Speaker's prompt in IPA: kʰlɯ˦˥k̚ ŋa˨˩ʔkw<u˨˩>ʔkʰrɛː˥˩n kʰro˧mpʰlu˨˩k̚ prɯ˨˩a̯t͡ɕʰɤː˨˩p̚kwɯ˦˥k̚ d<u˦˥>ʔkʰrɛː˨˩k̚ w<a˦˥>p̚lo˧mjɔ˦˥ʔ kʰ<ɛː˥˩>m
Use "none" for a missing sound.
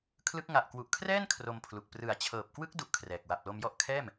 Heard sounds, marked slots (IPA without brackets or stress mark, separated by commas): u˨˩, u˦˥, a˨˩, ɛː˥˩